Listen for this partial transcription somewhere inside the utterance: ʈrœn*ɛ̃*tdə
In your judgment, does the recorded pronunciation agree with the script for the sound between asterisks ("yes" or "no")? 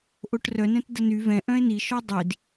yes